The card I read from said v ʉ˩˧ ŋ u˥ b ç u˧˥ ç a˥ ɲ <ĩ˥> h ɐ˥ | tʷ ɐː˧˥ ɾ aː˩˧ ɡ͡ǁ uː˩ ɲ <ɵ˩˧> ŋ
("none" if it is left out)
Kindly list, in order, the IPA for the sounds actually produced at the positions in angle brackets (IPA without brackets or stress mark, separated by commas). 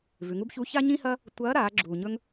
ĩ˥, ɵ˥